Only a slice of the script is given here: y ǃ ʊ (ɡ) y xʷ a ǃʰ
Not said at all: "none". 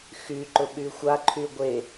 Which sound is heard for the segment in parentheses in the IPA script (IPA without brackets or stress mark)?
ɓ